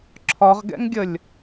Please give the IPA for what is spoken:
ǁʰ ɒ ʁ ɡ ɛ̰ ŋ ɡʲ ə lʲ

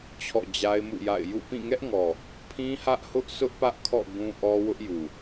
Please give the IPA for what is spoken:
t͡ɕʰ ɔ̰˦˨ d͡ʑ a˦ ɪ̯ m ṵ˦˨ j a̰˦˨ ɪ̯ j ṵ˦˨ p ĩ˦˨ ŋ ɛ˦ ʔ ŋ ɔ˨ | pʰ ĩ˦ h ä˦ ʔ h ʊ˦ ʔ s ʊ˦ ʔ p ä˦ ʔ kʰ ɔ̰˦˨ ɡ ũ˦ ʔ ɔ˦ w ʊ˦ ʔ j u˨

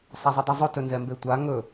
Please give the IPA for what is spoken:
sˤ a zˤ ɵ dˤ ø zˤ ɵ t ɵ n z ɛ m b e tʷ a ŋ ɵ

